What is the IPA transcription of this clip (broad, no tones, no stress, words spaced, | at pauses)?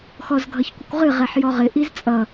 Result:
xɔzɡʱʌçkʷɪkʷʁɨ ʁɛħjɔʁɪ ʔizt͡sʼʌ